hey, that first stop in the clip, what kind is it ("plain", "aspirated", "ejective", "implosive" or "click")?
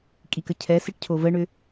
ejective